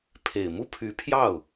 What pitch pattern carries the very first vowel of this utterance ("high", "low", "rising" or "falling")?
low